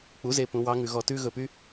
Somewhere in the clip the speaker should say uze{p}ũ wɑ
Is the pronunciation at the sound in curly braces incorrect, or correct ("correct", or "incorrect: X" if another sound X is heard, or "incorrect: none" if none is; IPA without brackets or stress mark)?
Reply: correct